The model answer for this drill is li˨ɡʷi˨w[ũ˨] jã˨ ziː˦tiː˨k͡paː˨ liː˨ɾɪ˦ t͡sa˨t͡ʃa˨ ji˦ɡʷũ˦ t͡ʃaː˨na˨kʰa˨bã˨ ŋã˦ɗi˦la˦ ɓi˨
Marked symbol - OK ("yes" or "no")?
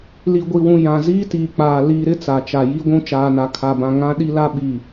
yes